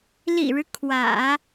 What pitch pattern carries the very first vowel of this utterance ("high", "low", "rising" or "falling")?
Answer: low